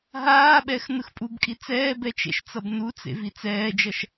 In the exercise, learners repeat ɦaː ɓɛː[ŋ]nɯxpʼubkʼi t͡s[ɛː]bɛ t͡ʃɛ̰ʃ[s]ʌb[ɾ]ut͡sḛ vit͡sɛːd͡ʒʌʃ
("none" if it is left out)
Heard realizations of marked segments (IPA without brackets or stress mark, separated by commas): x, ɛː, t͡s, n